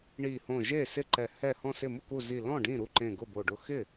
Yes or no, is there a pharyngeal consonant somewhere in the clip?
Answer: no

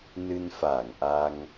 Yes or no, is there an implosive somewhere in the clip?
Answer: no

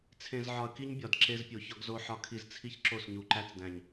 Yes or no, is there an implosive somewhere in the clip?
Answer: no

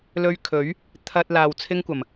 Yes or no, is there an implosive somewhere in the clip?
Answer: no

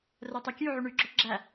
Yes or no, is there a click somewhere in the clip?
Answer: yes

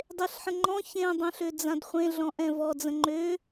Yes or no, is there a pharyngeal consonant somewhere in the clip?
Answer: yes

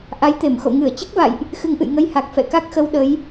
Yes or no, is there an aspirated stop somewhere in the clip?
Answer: no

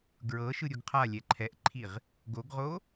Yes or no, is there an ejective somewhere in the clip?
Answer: no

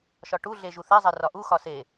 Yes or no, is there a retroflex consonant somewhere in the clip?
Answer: yes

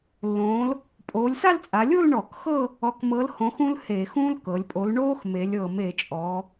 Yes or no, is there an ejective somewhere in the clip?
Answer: yes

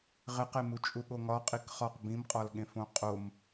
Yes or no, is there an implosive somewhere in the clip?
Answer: yes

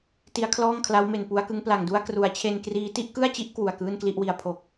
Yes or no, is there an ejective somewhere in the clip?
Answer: no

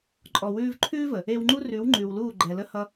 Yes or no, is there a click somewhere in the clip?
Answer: yes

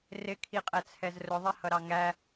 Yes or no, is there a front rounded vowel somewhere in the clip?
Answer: no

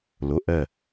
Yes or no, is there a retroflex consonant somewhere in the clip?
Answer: no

